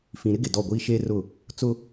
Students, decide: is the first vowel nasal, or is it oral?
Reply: nasal